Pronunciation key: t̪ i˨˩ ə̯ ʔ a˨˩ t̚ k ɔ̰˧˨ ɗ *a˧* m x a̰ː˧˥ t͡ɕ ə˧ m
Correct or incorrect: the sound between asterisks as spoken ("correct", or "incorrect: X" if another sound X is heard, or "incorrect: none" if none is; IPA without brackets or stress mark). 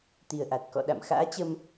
incorrect: a̰˧˨